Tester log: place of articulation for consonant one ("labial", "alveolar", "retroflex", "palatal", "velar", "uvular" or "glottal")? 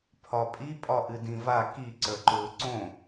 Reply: labial